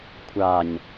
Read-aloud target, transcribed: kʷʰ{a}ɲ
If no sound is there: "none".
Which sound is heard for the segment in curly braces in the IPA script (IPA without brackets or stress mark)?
a